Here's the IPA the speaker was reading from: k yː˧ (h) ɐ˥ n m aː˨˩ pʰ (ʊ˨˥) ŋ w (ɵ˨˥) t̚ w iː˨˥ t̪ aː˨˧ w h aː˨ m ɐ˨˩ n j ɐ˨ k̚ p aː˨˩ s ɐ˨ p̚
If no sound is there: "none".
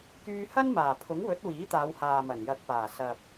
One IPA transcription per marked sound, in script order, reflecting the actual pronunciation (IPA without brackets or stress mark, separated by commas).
h, ʊ˨˥, ɵ˨˥